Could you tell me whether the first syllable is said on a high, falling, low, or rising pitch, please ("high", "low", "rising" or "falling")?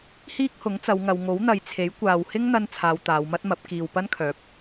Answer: high